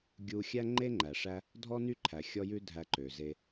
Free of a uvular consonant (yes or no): yes